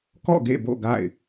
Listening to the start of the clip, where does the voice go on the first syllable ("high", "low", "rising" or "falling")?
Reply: falling